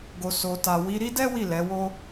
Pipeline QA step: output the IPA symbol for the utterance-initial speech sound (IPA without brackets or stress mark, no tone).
ɡ